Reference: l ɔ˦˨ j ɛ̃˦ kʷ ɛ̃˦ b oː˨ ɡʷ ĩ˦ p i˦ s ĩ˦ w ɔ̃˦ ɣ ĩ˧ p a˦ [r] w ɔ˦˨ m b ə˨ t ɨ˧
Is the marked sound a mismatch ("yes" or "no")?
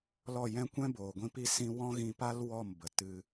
yes